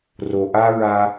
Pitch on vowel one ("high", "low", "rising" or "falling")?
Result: low